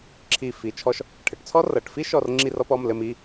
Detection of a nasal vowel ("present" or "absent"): absent